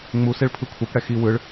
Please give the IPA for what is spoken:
ŋ͡museɭ pʰɯkʷʰepɽɛ xi wɯɭ

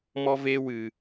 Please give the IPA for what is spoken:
mɔ˦ve˦wɨ˧

